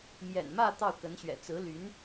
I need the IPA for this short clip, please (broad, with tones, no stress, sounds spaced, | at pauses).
m j ɛ̰˨˩ n m ä˥˧ t̪ ɑ˥˩ ʊ̯ k ə˧˥ n ɕ ɥ ɛ̰˨˩ t͡s ɹ̩˧˥ l y˧˥ n